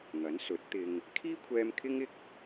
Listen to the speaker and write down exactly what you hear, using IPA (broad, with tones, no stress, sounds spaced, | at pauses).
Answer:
ŋ ɐ˨˥ n s ɵ˨˥ t̚ t̪ ɪ˧ ŋ | kʰ iː˥ kʷʰ ɛː˧ m kʰ ɪ˥ ŋ ɪ˥ k̚